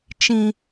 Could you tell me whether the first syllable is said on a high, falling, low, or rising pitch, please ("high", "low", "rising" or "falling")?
high